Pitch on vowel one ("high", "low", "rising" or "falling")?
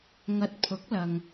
low